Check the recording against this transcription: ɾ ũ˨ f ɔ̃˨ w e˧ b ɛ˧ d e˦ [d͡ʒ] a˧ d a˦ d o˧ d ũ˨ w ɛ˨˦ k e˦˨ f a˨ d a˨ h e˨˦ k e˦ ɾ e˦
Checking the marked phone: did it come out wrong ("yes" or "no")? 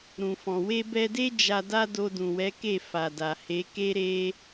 no